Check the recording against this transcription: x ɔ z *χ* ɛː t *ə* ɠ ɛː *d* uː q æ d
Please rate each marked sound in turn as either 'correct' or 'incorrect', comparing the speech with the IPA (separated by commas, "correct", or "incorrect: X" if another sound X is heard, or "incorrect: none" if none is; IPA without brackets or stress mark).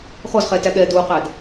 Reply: correct, incorrect: æ, correct